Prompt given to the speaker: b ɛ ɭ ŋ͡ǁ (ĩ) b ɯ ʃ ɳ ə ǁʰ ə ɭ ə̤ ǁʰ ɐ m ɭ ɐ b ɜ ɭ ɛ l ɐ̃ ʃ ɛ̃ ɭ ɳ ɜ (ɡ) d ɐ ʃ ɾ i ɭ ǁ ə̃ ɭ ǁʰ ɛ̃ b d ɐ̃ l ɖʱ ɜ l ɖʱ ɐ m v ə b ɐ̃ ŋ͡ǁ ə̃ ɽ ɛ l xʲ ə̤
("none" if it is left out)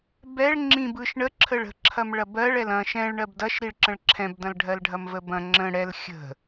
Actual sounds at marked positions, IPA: ĩ, b

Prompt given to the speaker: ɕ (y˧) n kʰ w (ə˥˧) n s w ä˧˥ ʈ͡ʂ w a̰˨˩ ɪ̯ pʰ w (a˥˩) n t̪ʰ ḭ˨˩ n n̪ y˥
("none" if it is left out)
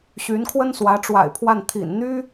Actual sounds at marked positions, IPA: y˧˥, ə˥, a˥˩

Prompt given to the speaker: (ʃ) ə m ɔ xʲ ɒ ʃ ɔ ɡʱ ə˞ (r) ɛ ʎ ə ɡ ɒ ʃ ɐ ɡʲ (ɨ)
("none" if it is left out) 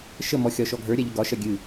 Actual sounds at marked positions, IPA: ʃ, ɾʲ, ɨ

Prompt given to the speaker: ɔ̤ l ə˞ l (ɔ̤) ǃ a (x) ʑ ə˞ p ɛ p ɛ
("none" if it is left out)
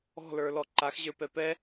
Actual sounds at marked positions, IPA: ɔ, x

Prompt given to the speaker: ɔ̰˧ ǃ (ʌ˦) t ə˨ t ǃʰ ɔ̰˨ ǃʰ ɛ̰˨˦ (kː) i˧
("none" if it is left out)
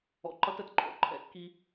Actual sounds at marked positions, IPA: ʌ˦, kː

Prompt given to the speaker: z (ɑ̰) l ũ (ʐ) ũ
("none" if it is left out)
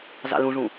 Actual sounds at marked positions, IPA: ɑ̰, ʐ

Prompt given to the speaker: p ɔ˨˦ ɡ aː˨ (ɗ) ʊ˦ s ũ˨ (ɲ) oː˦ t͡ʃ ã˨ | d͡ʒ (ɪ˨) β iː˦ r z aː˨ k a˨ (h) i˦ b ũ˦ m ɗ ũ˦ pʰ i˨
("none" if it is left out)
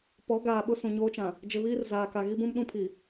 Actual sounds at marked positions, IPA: ɓ, ɲ, ɪ˨, ɣ

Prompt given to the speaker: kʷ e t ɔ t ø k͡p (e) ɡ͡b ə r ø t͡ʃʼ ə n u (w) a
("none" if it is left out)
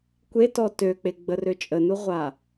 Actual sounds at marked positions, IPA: e, ʁʷ

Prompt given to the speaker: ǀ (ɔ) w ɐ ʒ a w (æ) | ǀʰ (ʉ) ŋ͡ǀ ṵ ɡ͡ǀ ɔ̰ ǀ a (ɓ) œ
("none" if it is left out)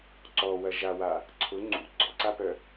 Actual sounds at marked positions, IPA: ɔ, a, ʊ, p

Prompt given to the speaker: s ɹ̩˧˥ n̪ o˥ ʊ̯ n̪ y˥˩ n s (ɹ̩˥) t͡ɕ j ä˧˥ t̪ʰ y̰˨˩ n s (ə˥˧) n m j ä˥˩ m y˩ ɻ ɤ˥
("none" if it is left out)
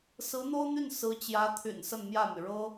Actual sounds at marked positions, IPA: ɹ̩˧˥, ə˥˧

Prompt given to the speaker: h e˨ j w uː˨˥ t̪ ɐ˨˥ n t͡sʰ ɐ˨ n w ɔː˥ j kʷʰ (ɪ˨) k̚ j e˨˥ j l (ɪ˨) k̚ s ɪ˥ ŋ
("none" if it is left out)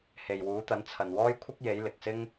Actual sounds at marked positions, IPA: ɪ˥, ɪ˨

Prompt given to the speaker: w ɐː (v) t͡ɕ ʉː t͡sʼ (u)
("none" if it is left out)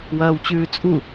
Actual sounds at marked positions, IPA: w, u

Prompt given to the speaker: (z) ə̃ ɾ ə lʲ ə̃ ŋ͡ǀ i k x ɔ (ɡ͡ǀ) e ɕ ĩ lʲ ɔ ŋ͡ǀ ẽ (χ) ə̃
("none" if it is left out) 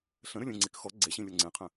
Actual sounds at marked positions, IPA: ɬ, ɡ͡ǀ, qʰ

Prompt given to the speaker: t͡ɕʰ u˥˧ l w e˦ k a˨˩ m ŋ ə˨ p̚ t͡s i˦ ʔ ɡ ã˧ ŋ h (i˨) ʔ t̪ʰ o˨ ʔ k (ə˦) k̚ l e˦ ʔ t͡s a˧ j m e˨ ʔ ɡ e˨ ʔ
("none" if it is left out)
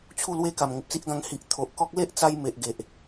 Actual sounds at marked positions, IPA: i˨, ɔ˦

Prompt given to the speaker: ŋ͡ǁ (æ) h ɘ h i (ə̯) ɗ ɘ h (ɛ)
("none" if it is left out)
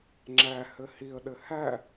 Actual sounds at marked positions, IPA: æ, ə̯, æ

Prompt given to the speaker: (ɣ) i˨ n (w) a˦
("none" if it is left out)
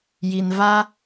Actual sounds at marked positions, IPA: j, v

